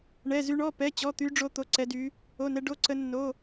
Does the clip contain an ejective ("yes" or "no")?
no